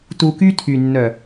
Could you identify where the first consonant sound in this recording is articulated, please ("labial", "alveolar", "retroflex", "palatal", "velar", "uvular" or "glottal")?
alveolar